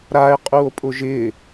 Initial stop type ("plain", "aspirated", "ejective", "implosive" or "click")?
ejective